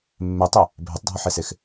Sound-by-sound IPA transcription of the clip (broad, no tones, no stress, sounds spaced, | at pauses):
mː e tˤ e | bʱ e tˤ dʱ ɔ ħ e s e x